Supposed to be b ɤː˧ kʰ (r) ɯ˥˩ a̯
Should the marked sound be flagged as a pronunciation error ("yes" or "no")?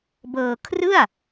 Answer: no